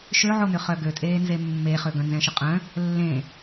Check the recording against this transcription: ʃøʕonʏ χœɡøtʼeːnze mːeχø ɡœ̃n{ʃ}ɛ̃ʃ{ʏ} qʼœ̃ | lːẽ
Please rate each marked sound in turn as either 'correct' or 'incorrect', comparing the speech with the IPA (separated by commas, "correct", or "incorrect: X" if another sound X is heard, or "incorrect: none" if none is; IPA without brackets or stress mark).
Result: incorrect: z, correct